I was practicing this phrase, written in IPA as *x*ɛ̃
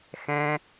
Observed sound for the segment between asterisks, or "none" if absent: x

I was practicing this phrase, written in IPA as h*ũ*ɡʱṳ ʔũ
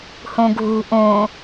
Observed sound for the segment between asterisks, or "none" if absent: ũ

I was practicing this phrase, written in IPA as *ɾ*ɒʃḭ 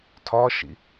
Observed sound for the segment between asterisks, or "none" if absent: tʰ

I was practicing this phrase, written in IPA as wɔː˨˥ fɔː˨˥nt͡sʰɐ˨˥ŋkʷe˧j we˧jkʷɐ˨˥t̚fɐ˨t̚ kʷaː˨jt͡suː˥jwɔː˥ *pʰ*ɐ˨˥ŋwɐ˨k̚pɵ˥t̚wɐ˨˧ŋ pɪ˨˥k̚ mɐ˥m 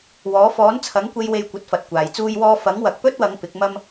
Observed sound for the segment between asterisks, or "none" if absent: f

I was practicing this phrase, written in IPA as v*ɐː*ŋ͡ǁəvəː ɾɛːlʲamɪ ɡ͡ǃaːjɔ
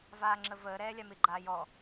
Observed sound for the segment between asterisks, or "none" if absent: aː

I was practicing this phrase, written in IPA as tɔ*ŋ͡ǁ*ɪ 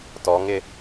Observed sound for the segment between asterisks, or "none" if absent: ŋ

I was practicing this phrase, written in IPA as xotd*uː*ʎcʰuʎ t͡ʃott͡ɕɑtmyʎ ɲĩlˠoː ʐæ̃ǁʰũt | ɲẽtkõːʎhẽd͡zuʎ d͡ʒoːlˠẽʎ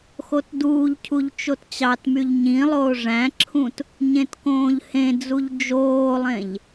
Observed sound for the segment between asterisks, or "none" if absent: uː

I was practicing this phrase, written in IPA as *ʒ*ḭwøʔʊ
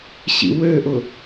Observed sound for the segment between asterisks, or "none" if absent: ɕ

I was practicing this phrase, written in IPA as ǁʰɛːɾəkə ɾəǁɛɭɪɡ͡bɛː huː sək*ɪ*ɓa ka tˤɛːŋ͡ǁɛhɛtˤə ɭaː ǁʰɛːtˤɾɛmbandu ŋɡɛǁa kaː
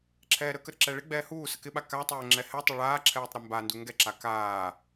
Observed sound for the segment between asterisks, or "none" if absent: ɪ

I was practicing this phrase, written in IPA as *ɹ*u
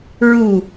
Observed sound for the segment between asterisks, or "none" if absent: ɹ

